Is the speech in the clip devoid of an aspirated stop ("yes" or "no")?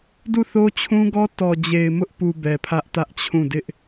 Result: no